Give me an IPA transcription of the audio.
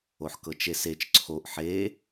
o ħ k ɤ t͡ʃ e s e t͡ʃ ǀʰ o ʔ ħ e

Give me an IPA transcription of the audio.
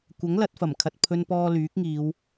kʷ ɐ˨˥ ŋ l ɐ˨˥ t̚ f ɐ˨˩ m kʰ ɐ˨ t̚ pʰ ɵ˧ n p ɔː˧ l yː˨˥ k̚ ŋ iː˨˧ w

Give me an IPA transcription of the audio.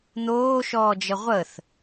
n̪ oː ʃ ɔː d͡ʒ ə ʁʷ ə θ

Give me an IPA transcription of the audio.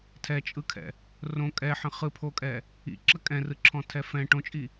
tʰ ɛ t͡ʃʼ ɯ kʰ ɛ̰ | r õ kʼ ɛ ħ ə̃ χ ɯ pʰ o kʼ ɛ | ḭ ǁ ə kʼ ɛ̃ r ɯ ǁʰ ɔ̃ tʰ ɛ f ɛ̃ ʈ õ t͡ʃʼ i

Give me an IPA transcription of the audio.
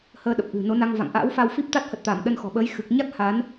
h əː˧ ɗ ə˨˩ p̚ ʔ ɨ̤˨˩ n o˨˦ n a˧ ŋ v a̰˧˨ ŋ ʔ a̰ː˧˥ w f a˧ w f i˦˥ p̚ t̪ a˦˥ t̚ h ə˨˩ t̚ t̪ a˧˩ m ɗ ə˧ n x ɔ̤˨˩ ɓ əː˨˦ j x ɨ˨˩ k̚ ɲ a˦˥ k̚ h a˨˦ n

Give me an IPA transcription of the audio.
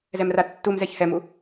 z ɛ m r a tː u m z ɛ ç h ɛ m u

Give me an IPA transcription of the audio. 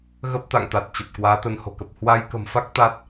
ɣ ə˦˥ p̚ t̪ a̰˧˨ ŋ t̪ a˨˩ t̚ t͡ɕ ə˨˩ p̚ k w aː˨˦ t̪ ə˧ n h o̤˨˩ k ə˨˩ p̚ h w a˧ j k ə̤˨˩ m f a˦˥ k̚ t̪ a˦˥ t̚

